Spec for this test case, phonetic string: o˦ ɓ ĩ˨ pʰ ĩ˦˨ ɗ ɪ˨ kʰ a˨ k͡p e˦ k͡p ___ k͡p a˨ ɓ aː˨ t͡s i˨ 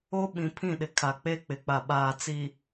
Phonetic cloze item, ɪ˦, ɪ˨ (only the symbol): ɪ˨